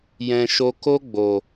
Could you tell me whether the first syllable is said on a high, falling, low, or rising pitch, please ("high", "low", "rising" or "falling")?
low